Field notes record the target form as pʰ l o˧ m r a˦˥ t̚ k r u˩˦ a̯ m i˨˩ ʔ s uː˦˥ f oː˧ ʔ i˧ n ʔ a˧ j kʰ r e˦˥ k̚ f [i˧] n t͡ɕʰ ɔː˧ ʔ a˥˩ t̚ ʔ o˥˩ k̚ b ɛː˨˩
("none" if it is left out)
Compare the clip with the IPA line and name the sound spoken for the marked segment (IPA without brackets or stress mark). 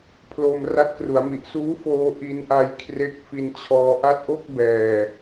i˧